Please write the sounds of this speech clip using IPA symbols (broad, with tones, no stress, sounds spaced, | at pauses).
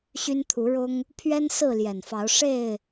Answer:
ɕ y˦ n t̪ʰ u˨˦ ɻ ʊ˦ ŋ | pʰ ɥ ɛ˦ n s ɹ̩˥˨ l j ɛ˨˩ n f ɑ˨˦ ʊ̯ ʂ e˥˨ ɪ̯